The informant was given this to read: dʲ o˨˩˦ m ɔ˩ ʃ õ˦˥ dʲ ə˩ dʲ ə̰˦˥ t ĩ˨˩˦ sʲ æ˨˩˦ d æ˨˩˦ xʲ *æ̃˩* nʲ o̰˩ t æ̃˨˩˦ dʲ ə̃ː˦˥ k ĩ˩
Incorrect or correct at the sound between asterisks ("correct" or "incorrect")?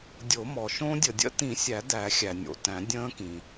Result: incorrect